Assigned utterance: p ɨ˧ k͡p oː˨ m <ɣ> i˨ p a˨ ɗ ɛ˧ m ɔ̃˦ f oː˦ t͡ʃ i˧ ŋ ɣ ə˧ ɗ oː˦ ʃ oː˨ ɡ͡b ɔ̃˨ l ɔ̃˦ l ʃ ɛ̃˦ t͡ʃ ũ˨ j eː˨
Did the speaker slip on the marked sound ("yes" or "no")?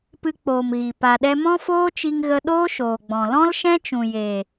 no